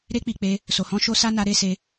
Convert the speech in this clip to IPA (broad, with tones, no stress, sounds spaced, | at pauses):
ɾ e˦ k͡p i˧ k͡p e˦ | s o˧ h ɔ̃˦ ʃ o˦ s a˦ n a˦ ɾ e˦ s e˦